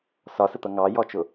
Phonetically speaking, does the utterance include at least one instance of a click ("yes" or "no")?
no